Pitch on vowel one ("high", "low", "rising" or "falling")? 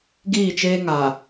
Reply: falling